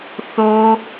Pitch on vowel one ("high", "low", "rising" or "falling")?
low